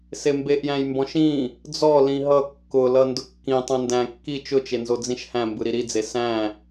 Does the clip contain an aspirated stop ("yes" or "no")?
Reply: no